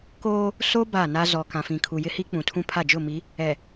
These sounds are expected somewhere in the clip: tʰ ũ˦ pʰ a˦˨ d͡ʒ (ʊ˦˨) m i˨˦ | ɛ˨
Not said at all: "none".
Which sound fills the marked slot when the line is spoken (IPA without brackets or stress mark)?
ʊ˦˨